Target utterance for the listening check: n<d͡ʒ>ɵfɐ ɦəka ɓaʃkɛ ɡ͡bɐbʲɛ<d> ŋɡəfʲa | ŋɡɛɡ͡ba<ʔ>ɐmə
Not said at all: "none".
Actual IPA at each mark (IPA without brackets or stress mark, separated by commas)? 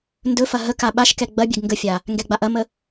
d, ɡ, ʔ